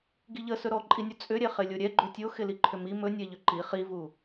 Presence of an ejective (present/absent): present